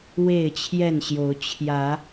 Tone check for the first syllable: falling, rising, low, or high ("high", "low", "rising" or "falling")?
falling